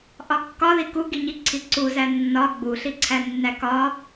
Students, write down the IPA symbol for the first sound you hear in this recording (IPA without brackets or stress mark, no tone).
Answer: ʔ